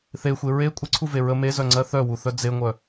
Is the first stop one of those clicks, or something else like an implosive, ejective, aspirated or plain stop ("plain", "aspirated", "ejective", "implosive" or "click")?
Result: ejective